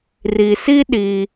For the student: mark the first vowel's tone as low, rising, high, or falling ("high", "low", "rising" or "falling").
low